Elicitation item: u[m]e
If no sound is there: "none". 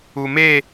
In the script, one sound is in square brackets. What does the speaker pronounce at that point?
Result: m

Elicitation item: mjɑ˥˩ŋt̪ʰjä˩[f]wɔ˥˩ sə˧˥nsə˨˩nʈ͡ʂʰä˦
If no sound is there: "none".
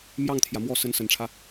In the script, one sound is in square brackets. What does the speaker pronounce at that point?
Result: m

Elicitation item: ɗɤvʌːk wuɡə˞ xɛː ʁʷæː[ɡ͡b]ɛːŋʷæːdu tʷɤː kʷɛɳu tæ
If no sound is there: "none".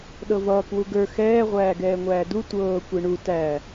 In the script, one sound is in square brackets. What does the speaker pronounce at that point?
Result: ɡ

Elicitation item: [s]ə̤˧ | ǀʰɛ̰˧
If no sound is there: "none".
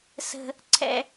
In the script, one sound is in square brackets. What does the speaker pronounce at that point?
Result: s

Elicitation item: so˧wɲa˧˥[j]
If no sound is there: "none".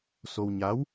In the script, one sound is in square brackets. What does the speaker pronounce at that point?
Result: w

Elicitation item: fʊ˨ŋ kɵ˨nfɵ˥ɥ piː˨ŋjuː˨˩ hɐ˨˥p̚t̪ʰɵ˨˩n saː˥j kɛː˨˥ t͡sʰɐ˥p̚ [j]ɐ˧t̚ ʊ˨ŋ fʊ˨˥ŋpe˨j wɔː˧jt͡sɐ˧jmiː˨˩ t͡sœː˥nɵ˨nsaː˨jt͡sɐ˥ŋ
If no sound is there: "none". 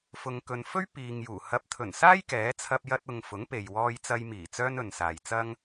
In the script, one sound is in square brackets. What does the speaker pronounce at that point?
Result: j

